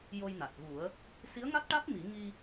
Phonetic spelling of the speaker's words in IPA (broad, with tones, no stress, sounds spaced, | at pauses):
j o˧ j n a˨˩ t̚ ɣ u˨˩˦ ə̯ | s i˧˥ ə̯ ŋ a˦˥ t̚ ʈ a˦˥ t̚ m i˨˩˦ ŋ i˧